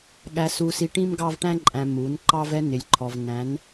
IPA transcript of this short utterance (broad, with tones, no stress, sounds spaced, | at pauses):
ɠ æ˨ s u˨ s i˨ ʈ ĩ˦ m ɡ ɑ˦ v ʈ æ̃˦ ǃʼ æ̃˨ m u˨˦ n ǃ ɑ˦ v ɛ˦ n ɪ˨ lʲ ǃʰ ɔ˨ v n æ̃˨˦ n